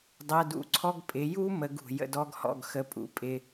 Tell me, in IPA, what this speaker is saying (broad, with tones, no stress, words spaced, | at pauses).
dˤɜ˧˥˧dṵ˧˥˧ǀʰɔ˥ɡ pʼɪ˨˥ ju˥ mə˨˥ɡṳ˩ jə̰˦˨dɔ˥ɡhɔ̰˦˨ɡ xə˦˨pʼṵ˨˥pʼɪ˧˥˧